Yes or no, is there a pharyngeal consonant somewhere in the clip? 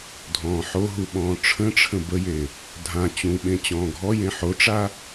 yes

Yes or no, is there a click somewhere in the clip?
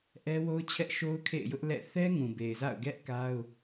no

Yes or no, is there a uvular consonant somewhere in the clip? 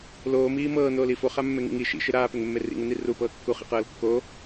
yes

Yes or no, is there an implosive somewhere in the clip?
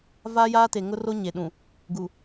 yes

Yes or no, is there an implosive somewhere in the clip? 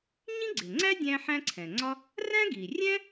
no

